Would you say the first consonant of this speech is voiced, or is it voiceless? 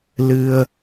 voiced